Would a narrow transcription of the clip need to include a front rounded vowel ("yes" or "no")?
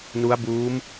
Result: no